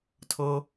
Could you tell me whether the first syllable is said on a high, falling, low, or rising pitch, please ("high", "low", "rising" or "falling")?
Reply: low